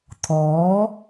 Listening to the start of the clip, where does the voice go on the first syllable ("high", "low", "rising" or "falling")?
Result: rising